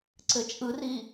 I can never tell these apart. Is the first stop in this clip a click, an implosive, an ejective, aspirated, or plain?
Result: click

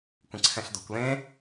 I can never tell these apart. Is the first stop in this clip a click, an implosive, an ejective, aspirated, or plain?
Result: plain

